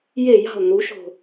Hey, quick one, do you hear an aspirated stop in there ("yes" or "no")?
no